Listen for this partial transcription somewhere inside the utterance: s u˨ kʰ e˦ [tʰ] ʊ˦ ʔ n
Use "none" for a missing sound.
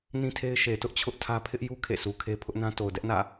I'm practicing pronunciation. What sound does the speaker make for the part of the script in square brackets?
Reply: pʰ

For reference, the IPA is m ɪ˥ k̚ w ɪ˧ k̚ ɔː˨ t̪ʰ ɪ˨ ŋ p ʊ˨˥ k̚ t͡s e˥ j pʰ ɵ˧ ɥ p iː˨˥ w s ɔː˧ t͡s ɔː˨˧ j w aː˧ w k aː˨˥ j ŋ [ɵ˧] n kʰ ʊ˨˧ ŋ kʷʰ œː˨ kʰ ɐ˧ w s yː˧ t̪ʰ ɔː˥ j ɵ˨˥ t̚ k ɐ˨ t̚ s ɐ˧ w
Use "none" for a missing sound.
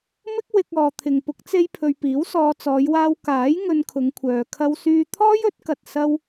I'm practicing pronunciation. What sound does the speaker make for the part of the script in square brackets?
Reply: ɵ˧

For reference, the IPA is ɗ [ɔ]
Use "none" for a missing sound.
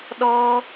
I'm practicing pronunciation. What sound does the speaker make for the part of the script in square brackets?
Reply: ɔ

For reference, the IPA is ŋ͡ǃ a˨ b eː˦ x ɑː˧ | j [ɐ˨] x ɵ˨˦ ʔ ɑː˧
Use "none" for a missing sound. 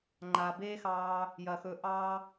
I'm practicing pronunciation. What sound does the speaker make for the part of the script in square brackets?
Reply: ɐ˨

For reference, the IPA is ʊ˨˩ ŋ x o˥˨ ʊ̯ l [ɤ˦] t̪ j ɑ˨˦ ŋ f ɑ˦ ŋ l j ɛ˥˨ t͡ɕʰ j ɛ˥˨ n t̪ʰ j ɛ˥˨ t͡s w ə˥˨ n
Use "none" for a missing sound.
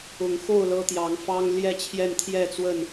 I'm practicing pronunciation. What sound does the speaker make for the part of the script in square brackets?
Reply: ɤ˦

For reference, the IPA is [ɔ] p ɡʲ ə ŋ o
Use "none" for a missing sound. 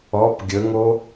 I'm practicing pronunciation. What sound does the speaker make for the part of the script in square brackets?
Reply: ɔ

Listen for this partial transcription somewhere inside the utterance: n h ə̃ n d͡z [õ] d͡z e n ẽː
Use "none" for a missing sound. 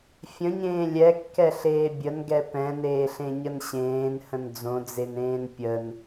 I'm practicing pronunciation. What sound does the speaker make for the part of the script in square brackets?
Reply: õ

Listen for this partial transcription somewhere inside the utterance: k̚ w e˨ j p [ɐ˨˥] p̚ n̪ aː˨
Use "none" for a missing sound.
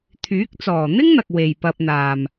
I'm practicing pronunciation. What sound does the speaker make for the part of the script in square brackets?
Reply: ɐ˧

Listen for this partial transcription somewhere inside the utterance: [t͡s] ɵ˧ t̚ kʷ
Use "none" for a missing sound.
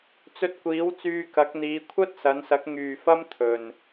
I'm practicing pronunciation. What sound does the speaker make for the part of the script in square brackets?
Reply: t͡s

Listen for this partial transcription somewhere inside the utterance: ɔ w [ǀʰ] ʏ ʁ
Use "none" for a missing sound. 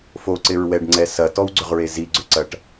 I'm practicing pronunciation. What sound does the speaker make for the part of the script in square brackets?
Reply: ɡ͡ǀ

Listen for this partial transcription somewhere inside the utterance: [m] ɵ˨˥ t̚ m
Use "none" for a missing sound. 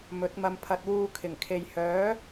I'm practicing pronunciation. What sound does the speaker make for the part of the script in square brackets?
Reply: m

